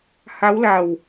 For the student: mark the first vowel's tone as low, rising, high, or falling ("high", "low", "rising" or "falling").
rising